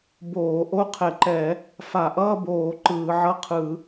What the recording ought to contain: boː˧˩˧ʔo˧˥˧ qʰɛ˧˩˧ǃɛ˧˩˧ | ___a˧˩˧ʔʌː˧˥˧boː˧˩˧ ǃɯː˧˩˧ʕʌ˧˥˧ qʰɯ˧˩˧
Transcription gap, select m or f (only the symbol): f